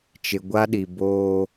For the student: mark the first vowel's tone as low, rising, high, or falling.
low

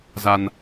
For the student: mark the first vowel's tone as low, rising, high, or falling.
low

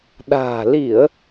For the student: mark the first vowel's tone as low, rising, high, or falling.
low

